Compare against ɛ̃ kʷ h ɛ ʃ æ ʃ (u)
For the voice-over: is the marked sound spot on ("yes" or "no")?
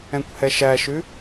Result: no